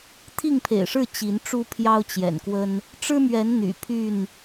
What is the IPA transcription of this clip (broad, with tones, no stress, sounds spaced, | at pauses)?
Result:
t̪ʰ i˥˨ ŋ pʰ ḛ˨˩ ɪ̯ ʂ ɻ̩˥˨ t͡ɕ i˨˦ n ʈ͡ʂ u˦ pʰ j ɑ˦ ʊ̯ t͡ɕ j ɛ̰˨˩ n k w ə˦ n | ʈ͡ʂ ɻ̩˦ m ɥ ɛ˨˦ n n̪ y̰˨˩ pʰ y˥˨ n